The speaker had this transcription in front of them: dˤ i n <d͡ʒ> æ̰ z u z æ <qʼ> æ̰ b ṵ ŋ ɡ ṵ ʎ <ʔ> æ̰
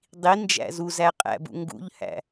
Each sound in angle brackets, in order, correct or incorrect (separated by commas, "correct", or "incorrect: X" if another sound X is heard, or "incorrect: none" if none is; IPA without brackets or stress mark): correct, correct, incorrect: h